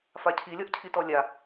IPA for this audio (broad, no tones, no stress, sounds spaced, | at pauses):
f a cʰ i lʲ ɔ ʔ cʰ i t ɔ lʲ a